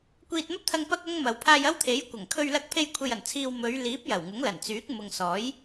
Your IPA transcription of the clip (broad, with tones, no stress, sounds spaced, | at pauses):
kʷ iː˧ t̚ m ɐ˥ p̚ t̪ʰ ɐ˧ ŋ p ɐ˥ k̚ ɐ˥ ŋ m ɐ˨ w pʰ aː˧ j ɐ˥ w t̪ʰ e˨˥ j kʷ ɐ˨˩ ŋ kʰ ɵ˧ ɥ l ɐ˧ k̚ pʰ e˧ j kʷʰ e˨ j ɐ˨˩ n t͡sʰ iː˨ w m ɵ˨˧ ɥ l iː˨˥ p̚ j ɐ˨˩ w ŋ ʊ˨˥ ŋ l ɐ˨˩ n t͡s yː˨˥ k̚ m ʊ˨ ŋ s ɔː˨˥ j